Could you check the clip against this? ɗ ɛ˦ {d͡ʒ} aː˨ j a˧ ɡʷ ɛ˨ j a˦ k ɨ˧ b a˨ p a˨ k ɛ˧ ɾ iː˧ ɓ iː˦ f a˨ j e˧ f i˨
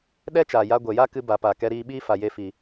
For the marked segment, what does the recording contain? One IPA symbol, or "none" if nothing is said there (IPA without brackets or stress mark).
t͡ʃ